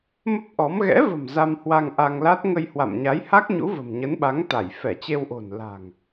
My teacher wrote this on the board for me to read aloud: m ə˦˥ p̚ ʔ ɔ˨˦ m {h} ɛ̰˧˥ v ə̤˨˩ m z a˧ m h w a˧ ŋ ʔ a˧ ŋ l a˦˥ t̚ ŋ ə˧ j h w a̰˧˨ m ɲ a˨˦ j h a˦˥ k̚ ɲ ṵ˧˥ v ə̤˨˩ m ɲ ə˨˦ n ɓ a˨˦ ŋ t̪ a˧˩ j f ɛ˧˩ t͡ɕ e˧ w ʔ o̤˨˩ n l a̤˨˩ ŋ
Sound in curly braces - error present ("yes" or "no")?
yes